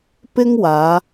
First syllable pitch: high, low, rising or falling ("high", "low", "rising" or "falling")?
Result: high